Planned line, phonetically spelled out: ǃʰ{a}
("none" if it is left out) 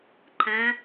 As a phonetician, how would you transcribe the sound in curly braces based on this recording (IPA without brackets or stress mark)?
ã